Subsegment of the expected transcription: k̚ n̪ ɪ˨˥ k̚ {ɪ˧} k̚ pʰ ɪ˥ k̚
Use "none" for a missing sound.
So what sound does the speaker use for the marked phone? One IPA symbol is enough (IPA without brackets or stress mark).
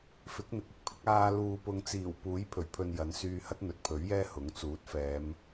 ɪ˧